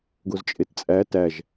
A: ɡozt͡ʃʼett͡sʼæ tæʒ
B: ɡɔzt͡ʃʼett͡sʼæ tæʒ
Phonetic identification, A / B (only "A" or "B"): A